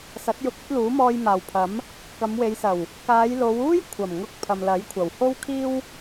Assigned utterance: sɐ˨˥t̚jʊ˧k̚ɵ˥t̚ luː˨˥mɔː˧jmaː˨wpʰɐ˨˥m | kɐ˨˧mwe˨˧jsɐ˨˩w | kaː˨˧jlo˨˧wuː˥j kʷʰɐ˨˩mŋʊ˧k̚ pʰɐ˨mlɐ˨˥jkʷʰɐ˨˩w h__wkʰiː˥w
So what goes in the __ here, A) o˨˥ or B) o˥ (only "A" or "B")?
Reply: B